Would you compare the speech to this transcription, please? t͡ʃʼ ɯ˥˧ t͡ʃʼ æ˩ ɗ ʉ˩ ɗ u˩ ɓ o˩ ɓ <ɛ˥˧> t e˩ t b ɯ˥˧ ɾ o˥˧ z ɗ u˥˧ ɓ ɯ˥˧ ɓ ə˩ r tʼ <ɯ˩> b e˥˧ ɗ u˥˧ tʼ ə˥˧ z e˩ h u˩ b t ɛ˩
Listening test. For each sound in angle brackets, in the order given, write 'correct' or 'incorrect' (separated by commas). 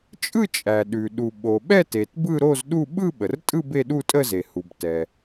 correct, incorrect